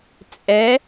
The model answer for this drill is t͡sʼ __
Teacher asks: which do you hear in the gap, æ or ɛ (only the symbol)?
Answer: ɛ